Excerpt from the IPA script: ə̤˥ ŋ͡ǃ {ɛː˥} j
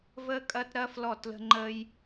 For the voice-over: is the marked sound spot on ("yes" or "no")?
no